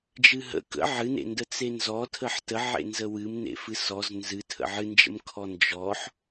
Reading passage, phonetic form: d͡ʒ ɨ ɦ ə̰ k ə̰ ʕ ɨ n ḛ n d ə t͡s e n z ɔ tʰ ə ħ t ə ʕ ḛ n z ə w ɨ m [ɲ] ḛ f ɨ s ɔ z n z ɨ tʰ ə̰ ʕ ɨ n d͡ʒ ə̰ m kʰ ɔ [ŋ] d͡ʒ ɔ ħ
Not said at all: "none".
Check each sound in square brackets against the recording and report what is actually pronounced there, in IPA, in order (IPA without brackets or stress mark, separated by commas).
n, n